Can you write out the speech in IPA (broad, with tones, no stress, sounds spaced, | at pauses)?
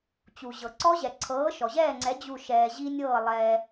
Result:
t͡ɕ u˩ ʑ ɤ˩ ǀ ɔ˦˥ ʑ ɛ˩ ǀʰ ɤː˨˥ ʃ ɔ˩ ʑ ɛː˥˨ ŋ͡ǀ ɛ˨˥ d͡ʑ u˧˩ ʃ ɛː˩ ʑ i˧ nʲ ɤː˧˩ lˠ ɛː˩